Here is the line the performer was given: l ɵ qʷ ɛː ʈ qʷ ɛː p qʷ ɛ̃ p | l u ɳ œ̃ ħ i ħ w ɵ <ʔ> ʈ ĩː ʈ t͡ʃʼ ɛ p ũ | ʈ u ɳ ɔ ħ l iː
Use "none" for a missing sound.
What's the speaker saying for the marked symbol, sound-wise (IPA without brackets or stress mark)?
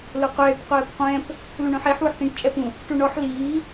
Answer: ħ